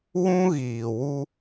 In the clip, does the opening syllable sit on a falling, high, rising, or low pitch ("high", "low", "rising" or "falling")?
high